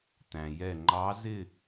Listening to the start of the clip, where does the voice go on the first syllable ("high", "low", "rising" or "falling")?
low